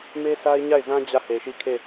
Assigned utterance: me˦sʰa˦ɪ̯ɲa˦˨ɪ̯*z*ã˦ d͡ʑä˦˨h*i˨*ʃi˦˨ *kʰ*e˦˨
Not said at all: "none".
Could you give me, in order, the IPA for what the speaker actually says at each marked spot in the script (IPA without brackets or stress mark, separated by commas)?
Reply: z, e˨, kʰ